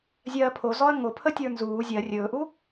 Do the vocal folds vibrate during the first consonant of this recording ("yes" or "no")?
yes